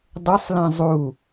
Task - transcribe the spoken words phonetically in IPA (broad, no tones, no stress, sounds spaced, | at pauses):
dˤ ɪ sˤ l ẽ zˤ u